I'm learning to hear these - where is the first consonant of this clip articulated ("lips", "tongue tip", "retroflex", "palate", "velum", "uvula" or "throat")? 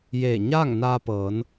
palate